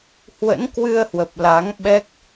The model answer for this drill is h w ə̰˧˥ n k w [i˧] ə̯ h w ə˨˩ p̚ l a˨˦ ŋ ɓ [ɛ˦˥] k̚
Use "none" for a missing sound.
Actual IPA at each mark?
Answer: ɨ˧, ɛ˦˥

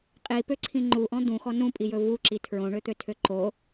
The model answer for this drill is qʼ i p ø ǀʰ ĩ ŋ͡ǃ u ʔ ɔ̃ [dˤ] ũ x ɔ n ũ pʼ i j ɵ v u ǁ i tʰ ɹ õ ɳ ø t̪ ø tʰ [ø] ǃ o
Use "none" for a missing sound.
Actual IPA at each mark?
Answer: d̪, ø

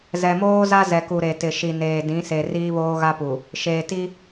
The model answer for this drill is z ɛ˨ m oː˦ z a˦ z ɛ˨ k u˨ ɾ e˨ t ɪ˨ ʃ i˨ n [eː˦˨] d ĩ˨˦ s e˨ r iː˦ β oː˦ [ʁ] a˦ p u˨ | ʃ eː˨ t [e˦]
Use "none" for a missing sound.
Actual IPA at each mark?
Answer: eː˨, ɣ, i˦

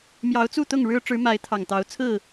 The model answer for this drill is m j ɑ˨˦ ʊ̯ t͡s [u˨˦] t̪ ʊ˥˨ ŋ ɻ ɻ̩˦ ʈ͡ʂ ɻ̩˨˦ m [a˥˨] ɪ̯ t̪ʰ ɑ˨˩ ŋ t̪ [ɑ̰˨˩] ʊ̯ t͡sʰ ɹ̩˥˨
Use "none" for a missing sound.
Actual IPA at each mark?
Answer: u˥˨, a˨˦, ɑ˨˦

